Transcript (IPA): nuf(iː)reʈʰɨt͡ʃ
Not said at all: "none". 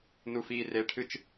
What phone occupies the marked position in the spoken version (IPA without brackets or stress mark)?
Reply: iː